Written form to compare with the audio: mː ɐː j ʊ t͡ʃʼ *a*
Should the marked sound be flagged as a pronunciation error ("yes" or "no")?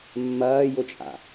yes